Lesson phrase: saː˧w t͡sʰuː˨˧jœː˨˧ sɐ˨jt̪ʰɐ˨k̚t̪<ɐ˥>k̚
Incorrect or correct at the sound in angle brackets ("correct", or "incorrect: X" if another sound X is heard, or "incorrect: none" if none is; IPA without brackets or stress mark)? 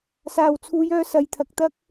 correct